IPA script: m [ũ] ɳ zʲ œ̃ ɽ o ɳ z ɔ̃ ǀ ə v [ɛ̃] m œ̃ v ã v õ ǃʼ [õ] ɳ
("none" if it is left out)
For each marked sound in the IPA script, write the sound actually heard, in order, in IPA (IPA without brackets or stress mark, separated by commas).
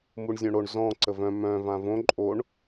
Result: u, œ̃, o